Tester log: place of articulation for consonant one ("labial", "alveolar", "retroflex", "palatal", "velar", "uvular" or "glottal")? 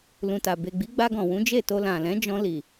alveolar